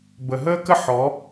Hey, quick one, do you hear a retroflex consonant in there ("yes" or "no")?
no